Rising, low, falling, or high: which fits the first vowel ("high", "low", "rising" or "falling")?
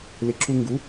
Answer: rising